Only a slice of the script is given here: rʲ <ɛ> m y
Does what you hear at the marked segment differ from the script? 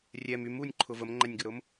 no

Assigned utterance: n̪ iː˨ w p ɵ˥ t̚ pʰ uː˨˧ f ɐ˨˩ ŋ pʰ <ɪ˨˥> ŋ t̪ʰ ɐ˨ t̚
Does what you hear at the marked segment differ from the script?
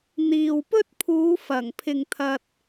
yes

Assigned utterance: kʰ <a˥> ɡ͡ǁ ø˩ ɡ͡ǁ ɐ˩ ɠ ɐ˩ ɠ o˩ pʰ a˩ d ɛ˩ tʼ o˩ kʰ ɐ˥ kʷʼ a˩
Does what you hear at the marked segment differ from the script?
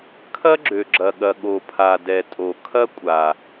yes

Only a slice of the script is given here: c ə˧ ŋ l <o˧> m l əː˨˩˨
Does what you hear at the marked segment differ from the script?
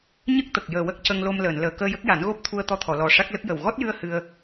no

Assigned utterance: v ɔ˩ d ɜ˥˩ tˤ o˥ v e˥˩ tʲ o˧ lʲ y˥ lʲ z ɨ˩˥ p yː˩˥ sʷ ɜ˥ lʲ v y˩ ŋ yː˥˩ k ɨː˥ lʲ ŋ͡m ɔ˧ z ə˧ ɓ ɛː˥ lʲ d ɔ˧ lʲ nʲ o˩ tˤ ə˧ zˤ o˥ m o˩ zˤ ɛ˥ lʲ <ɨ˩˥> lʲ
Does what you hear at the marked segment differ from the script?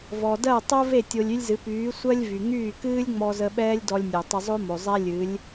no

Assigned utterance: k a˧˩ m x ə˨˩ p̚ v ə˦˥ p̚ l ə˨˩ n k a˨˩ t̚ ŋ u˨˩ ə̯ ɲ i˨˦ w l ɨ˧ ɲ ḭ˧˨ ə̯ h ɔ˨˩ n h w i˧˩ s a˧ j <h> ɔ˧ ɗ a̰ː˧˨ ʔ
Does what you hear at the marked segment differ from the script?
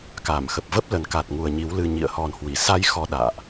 yes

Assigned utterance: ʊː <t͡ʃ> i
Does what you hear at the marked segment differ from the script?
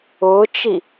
no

